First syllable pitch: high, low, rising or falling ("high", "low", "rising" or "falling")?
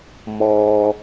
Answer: low